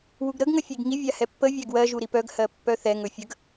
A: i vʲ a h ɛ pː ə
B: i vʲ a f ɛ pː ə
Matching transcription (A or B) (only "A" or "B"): A